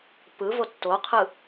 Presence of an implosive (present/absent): absent